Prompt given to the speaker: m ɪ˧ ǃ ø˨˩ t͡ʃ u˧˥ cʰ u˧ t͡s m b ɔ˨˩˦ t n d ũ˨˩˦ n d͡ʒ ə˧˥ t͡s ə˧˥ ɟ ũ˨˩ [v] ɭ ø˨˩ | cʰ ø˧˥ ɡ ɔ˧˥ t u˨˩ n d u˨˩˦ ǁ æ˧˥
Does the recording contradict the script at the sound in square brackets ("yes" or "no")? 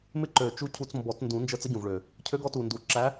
no